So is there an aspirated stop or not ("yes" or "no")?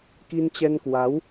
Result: no